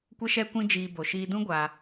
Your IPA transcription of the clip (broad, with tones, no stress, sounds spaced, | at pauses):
kʷ ə˦ ʃ ɛ˦ kʷ ĩ˦ d͡ʒ iː˧ b o˨ ʃ iː˧ d ũ˦ ɡʷ a˧